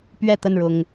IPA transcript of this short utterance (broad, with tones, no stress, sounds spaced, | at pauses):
p ɥ ɛ˥˨ t̪ ə˥˨ n ɻ ʊ˨˩ ŋ